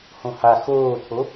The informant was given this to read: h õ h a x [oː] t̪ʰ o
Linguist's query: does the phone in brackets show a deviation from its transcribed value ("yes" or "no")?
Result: no